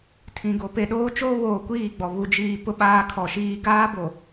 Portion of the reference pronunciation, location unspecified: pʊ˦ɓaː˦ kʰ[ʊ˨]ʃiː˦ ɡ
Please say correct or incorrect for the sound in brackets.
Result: incorrect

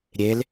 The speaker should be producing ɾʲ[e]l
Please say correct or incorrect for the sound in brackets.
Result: correct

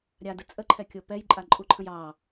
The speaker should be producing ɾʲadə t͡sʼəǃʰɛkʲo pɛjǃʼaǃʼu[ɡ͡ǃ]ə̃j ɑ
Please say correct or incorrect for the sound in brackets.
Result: incorrect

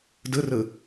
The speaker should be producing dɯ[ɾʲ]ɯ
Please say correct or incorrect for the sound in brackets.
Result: incorrect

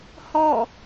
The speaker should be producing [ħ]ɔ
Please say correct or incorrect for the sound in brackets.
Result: incorrect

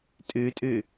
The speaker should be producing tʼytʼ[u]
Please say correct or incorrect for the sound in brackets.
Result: incorrect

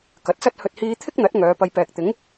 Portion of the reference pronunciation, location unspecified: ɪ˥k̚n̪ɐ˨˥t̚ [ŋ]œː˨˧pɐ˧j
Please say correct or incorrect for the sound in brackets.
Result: correct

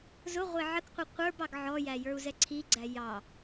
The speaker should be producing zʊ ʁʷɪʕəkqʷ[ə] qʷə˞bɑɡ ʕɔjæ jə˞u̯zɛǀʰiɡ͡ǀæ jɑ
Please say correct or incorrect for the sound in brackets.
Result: incorrect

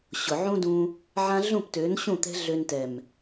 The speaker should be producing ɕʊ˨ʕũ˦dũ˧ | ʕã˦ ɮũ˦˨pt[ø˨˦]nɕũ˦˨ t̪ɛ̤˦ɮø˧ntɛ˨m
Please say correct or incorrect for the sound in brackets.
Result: correct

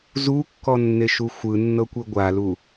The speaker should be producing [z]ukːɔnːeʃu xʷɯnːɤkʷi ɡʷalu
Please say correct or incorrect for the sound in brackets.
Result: correct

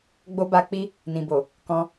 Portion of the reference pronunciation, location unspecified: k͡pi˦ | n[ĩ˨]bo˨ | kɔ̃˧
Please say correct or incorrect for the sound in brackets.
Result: correct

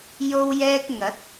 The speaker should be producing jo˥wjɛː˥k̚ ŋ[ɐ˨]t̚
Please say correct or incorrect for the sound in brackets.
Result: incorrect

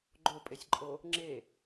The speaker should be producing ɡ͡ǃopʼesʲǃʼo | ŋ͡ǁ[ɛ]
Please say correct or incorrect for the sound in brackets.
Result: incorrect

